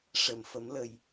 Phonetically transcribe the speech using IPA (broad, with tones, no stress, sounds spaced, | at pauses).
ʂ ə˨˩˨ m f ə˨˩˦ m l ə˨˩ j